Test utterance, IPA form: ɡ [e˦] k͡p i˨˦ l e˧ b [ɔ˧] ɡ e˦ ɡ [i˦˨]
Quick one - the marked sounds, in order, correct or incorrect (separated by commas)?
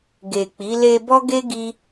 incorrect, incorrect, incorrect